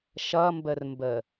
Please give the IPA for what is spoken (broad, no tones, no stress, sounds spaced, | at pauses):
ʃ ʌ m b ə r m b ə